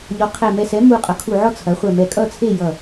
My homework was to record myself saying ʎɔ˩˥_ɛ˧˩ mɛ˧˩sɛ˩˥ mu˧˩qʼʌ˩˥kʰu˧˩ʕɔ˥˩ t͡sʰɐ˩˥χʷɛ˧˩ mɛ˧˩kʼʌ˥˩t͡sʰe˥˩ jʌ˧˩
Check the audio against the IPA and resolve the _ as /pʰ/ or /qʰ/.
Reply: qʰ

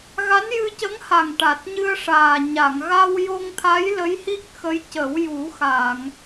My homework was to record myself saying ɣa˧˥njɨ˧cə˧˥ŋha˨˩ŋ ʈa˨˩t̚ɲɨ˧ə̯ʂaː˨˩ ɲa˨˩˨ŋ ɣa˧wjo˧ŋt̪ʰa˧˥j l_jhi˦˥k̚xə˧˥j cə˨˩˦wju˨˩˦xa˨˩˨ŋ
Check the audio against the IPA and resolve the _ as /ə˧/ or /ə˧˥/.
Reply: ə˧˥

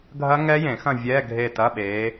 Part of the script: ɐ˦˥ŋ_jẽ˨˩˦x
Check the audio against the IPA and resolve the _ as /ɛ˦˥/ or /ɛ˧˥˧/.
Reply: ɛ˦˥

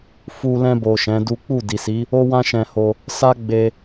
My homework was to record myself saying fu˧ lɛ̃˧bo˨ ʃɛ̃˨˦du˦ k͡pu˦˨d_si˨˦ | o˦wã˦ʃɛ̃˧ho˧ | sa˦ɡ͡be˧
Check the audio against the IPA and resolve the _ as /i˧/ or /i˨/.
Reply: i˨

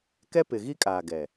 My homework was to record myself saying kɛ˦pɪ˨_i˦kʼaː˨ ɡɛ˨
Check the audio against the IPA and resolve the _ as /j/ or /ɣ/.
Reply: ɣ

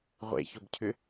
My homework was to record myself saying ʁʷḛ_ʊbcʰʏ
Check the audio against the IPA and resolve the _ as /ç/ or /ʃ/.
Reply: ç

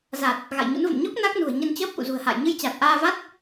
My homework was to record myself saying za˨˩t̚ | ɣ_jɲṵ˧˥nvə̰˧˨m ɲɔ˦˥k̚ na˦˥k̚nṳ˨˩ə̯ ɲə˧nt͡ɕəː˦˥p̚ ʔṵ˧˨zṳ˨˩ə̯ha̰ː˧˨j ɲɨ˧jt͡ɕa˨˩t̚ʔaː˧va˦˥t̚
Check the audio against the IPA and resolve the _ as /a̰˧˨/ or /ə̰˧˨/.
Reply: a̰˧˨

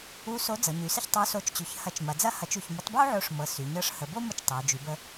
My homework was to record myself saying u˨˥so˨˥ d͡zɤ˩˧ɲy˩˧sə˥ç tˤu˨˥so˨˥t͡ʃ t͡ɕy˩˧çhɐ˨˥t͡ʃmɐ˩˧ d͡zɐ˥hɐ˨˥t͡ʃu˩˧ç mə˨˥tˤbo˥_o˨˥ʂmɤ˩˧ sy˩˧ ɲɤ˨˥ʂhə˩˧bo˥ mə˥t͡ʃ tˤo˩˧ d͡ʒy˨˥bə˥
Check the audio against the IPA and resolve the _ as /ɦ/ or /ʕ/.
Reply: ʕ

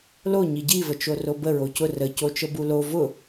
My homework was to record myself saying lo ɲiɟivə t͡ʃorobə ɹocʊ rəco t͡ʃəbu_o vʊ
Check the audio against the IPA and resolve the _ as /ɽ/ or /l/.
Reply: l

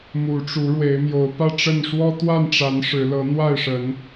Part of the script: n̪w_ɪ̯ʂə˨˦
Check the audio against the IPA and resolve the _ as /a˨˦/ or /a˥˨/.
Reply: a˥˨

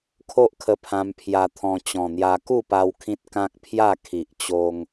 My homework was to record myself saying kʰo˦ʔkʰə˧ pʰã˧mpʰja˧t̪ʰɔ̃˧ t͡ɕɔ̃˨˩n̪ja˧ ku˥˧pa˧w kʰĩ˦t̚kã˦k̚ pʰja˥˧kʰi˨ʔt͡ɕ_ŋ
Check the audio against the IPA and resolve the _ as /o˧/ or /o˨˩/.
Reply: o˧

